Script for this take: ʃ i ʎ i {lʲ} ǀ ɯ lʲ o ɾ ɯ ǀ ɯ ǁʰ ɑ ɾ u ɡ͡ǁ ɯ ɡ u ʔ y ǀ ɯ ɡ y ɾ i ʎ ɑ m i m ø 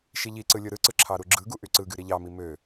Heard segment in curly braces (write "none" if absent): none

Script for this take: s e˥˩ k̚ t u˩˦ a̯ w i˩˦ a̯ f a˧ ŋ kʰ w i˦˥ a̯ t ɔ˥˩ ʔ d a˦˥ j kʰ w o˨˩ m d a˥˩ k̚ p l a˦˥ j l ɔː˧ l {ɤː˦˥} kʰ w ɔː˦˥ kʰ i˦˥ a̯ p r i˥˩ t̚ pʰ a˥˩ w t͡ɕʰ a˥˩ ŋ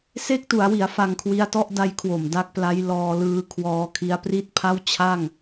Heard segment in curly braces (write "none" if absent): ɯː˦˥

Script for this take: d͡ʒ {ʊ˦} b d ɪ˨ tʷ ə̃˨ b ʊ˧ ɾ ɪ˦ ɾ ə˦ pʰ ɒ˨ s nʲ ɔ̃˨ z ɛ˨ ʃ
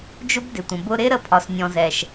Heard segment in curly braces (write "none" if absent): ʊ˦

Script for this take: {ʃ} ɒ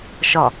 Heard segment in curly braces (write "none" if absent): ʃ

